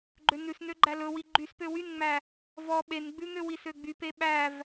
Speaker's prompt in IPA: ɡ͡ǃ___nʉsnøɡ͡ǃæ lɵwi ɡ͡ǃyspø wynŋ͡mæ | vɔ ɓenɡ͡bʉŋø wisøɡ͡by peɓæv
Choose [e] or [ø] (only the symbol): ø